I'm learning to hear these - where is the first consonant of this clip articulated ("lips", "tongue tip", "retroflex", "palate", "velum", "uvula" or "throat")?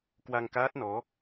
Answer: velum